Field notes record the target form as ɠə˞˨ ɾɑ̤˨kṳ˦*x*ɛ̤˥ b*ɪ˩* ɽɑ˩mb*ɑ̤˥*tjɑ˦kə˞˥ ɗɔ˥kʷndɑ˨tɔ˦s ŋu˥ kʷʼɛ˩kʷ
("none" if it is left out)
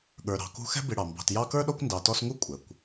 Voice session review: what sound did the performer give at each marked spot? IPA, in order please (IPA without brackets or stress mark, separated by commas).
x, ɪ˨, ɑ̤˨